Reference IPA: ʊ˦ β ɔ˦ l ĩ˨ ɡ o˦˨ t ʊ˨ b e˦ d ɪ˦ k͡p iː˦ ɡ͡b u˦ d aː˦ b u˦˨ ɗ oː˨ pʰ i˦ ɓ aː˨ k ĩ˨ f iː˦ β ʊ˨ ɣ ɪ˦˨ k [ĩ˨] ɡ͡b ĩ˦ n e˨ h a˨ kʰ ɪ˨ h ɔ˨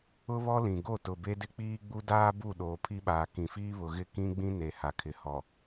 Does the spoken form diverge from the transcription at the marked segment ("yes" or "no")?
yes